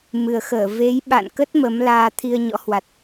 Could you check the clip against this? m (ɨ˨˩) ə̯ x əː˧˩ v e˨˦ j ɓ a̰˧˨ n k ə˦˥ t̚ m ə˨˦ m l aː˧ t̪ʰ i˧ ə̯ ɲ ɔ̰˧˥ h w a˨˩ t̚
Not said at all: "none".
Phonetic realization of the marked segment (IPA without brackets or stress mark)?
ɨ˨˩